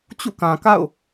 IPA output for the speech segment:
t͡ɕ ṵ˦˨ k ã˨ k a̰˦˨ ʊ̯

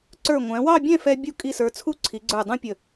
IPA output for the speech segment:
ǀ ə˞˧˩ ŋʷ æ̃˩˧ w ɑ˥˧ bʲ ɛ̃˥˧ f ɛ˧ bʲ u˧ kʼ i˧˩ s ə˞˩˧ t͡sʰ u˥˧ ǀʰ i˩˧ ɡ͡ǀ ə˞˧˩ dˤ ũ˥ pʲ ə˧˩

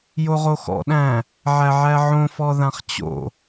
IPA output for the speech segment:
j o ʁ o x ɔ̰ ɗ æ̃ | ʕ æ ʕ æ ʕ õ f ɔ ð ã χ t͡ɕ o̰

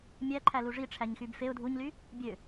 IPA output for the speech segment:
mʲ æ ǃʰ æ l u ʐ i ʈ͡ʂʰ æ ɲ x y b f e ʊ̯ dʱ u ɲ l y | bʲ ø

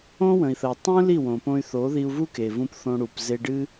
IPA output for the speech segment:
õ˦ w ə̃˨ i̯ θ ə˨ u̯ tˤ ũ˦ l i˦˨ w õ˨ p õ˧ y̯ θ o˨˦ ð i˧ u̯ v u˦ k e˨ v ũ˧ p θ õ˧ ɽ u˨ p z e˧ ɖ ɨ˦

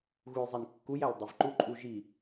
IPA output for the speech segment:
ɣ u j zˤ i n kː u j æ l dˤ e v ǃ u ǃʼ u ʒ i

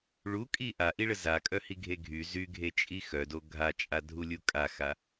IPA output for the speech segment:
ɭ u kʼ i ʔ a ʔ i ɭ ə z a kʼ œ h i ɡʱ e ɡʱ y z y ɡʱ e t͡ʃʼ i x œ d o ɡʱ a t͡ʃʼ a dʱ u lʲ u kʼ a x a

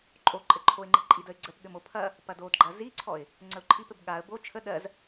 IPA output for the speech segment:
ǃʼ o ǃʼ ɘ ǃʰ o ɪ̯ ŋ͡ǃ ɘ ǃʼ i d ə ɪ̯ ɡ͡ǀ ə p ɠ ɘ m o pʰ ɐ | p ɐ d o d ɡ͡ǃ ɐ z i ǀʰ ɔ ɪ̯ | ŋ͡ǀ ə ʊ̯ ǃʰ i p ɘ b ɠ a ə̯ b o t͡ʃʰ ə ɗ ɜ z

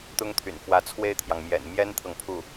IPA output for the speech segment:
t̪ ʊ˥ ŋ t̪ʰ y̰˨˩ n f w ä˧˥ t͡sʰ w e˥˩ ɪ̯ t̪ʰ j ɑ˩ ŋ m j ɛ̰˨˩ n m j ɛ˥ n t̪ʰ ɤ˨ ŋ pʰ u˥˩

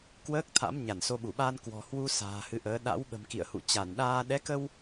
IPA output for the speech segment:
k w əː˦˥ k̚ t̪ʰ a̰˧˥ m ɲ a˧˩ n s o˧ ɓ u˧˩ ɓ a˧ n k w ɔ̤˨˩ h w u˧ s a̤ː˨˩ h ɨ˨˦ ʔ əː˨˦ ɗ a̰˧˥ w ɓ ə̤˨˩ m k ḭ˧˨ ə̯ h ṵ˧˨ t͡ɕ a˧˩ n ɗ aː˧ ɗ ɛ˨˦ k ə˧ w

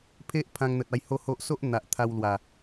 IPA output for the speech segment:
pʰ e˦ ʔ pʰ ã˧ ŋ n̪ ə˨ t̚ a˧ j h o˦ h o˦ ʔ s o˦ ʔ n̪ a˨ ʔ t̪ʰ a˧ w l w a˨˩

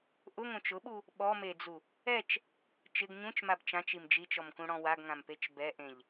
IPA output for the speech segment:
ʔ ʊ ŋ õ t͡ʃ ʊ ɓ u | ɓ ɔ m e d͡z u | ɛ t͡ʃ | t͡ʃ ɪ ɡ ɲ ũ t͡ʃ m a b t͡ʃ ã t͡ʃ i m d͡ʒ i t͡ʃ ɔ m k ũ ɽ ɔ̃ w a ɡ ŋ ã m p e t͡ʃ b ɛ ʔ ẽ ʎ

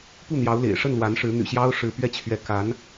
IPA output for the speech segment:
p u˥˩ n̪ j ɑ˧˥ ʊ̯ l ḛ˨˩ ɪ̯ ʂ ə˥˩ n l w a˧˥ n ʂ ɻ̩˧˥ n̪ y̰˨˩ ɕ j ɑ˥ ʊ̯ ʂ ɻ̩˧˥ p ɥ ɛ˥ t͡ɕʰ ɥ ɛ˧˥ k a˧˥ n

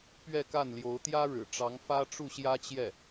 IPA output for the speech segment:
p ɥ ɛ˥˧ k a˥˩ n l j o˧˥ ʊ̯ t̪ j ä˥ ɻ ɻ̩˨˩ ʈ͡ʂ ɑ˧˥ ŋ f ä˥ ʈ͡ʂ u˥˩ ɕ j ä˥ t͡ɕ j ɛ˥˩

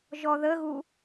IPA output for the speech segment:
ʒ ɔ ð ə ɣ u

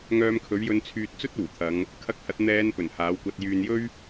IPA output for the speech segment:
ŋ œː˧ m kʰ ɵ˨˥ ɥ j ɵ˧ n t͡sʰ yː˧ t̚ t͡s ɵ˥ t̚ uː˨˩ t̪ʰ ɐ˨˧ ŋ | kʰ ɐ˧ k̚ h ɐ˨˥ t̚ n̪ ɛː˨˧ n p ɵ˨˩ n h aː˨˥ w kʷ ɐ˧ t̚ j yː˨ n j ɵ˥ ɥ

